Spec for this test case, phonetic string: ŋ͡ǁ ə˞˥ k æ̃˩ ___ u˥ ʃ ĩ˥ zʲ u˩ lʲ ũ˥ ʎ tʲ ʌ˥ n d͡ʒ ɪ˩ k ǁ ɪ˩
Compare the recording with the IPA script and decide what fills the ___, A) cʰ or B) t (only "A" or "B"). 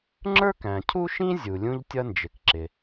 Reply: A